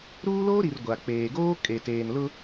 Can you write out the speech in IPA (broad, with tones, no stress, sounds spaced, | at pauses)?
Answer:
ɾ uː˦ l oː˦ ɾ i˨ r ɡʷ a˨ k͡p eː˨ ɡ oː˦ kʼ e˨ t eː˨ n l ʊ˦